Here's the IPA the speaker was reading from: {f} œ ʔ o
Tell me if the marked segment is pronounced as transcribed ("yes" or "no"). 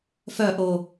yes